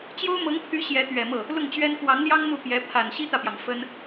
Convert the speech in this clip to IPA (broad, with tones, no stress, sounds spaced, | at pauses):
t͡ɕ j o˥ ʊ̯ m ɤ˧˥ ŋ pʰ y˧˥ ɕ j ɛ˧˥ t̪ ɥ ɛ˨˩ m ɤ˥˩ | l ʊ˥˩ ŋ t͡ɕ ɥ ɛ˥ n k w ɑ˧˥ ŋ l j ɑ˥ ŋ n̪ u˥˩ p j ɛ˧˥ pʰ a˨˩ n ɕ i˥ t̪ ä˨ p j ɑ˩ ŋ f ə˥ n